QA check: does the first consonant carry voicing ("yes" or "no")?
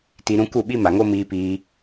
no